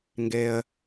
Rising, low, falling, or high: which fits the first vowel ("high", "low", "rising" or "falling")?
low